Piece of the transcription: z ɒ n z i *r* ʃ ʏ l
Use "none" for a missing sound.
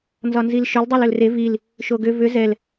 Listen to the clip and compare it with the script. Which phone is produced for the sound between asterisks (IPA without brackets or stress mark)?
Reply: l